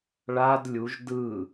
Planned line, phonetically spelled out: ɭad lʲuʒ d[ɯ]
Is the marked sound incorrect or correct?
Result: correct